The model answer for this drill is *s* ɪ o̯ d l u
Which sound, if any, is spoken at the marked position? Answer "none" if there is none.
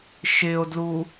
ʃ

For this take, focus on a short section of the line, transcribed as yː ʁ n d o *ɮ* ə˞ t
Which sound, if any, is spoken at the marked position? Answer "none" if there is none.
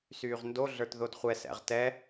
ɮ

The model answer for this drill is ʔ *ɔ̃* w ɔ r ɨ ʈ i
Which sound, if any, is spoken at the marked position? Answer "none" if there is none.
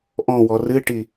ɔ̃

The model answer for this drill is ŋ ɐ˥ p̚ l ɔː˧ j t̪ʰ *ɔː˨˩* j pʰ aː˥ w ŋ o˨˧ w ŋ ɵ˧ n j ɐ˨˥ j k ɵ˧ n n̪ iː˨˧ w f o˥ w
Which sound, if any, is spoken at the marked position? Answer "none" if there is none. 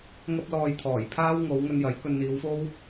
ɔː˨˩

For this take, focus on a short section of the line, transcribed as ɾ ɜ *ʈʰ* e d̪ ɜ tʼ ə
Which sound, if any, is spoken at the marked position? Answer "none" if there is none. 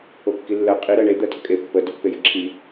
ɳ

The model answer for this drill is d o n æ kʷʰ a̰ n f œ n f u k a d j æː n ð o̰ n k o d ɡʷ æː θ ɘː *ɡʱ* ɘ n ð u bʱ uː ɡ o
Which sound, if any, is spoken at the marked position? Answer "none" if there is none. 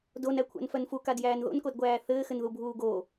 x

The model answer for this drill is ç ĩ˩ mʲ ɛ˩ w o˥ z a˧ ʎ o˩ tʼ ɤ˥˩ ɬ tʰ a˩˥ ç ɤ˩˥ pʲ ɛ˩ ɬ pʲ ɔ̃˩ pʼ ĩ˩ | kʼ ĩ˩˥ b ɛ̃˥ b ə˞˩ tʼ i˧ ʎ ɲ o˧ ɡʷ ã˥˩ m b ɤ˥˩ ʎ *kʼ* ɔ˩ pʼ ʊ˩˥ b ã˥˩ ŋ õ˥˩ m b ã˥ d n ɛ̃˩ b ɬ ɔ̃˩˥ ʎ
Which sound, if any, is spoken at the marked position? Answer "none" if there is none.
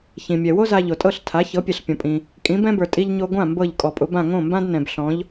kʼ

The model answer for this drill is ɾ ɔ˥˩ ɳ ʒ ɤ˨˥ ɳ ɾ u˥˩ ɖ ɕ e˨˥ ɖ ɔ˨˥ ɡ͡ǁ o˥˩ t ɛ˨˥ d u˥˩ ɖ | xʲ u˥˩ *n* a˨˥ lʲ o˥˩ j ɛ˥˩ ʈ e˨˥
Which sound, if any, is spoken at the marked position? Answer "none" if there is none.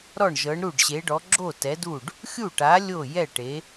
ʈ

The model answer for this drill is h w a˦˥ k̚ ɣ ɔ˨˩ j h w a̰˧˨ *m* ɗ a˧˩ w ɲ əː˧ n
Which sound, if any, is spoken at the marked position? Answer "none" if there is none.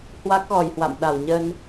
m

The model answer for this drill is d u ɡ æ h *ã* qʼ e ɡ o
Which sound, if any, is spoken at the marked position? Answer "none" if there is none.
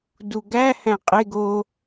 æ̃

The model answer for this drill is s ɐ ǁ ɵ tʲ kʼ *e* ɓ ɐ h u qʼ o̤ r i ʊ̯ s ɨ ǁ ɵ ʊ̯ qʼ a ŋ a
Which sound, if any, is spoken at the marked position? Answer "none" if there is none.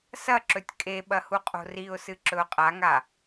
e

